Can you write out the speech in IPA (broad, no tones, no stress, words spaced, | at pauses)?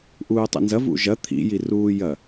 ʔuːtˤḭnzɐvṵ ʒɐ t̪ʰḭjiruːjɐ